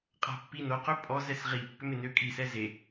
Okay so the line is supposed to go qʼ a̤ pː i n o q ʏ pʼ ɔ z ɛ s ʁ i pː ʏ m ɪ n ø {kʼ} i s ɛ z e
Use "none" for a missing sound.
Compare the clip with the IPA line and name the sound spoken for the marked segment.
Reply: kʼ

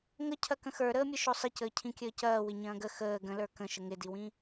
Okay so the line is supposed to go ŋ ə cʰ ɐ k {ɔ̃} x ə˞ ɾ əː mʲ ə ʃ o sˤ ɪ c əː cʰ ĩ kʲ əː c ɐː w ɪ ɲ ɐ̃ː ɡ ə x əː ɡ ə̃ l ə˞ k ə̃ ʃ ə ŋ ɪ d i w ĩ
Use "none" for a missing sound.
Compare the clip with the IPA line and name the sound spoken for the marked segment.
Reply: ə̃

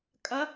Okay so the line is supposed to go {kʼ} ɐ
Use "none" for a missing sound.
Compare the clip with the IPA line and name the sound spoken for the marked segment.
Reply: kʼ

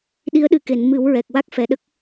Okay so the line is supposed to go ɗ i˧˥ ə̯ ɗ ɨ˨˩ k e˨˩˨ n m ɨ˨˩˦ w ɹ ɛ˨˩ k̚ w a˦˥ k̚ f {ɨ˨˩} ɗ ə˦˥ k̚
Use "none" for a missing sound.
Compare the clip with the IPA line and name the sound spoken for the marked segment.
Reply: ɛ˨˩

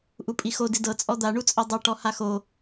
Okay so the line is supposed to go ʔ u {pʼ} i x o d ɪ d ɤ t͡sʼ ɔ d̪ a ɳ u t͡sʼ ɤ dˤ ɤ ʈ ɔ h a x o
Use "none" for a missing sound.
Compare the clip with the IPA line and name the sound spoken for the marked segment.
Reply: pʼ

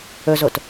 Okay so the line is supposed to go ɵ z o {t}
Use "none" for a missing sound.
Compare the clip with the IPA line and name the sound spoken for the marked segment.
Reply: t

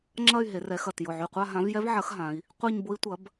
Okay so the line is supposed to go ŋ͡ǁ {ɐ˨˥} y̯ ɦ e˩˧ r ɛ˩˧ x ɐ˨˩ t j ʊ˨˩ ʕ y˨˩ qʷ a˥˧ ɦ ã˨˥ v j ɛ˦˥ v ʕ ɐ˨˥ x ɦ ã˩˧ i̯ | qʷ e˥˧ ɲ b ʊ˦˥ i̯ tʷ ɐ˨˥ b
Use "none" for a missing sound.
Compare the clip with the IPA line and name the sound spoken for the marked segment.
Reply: ɐ˥˧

